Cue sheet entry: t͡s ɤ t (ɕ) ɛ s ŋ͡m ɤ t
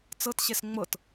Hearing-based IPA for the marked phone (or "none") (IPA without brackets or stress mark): ɕ